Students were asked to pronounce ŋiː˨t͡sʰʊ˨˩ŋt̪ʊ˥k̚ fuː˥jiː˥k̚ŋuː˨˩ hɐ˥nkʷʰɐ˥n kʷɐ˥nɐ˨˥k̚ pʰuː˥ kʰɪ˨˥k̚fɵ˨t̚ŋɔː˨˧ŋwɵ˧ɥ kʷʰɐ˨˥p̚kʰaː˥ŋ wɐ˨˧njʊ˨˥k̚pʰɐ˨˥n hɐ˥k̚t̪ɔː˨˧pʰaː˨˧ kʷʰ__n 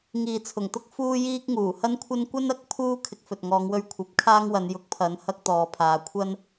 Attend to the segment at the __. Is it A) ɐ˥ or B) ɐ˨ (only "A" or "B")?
A